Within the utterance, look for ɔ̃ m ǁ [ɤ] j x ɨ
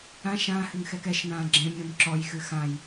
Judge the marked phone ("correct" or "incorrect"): incorrect